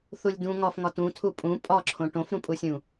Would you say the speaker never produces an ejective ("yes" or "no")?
no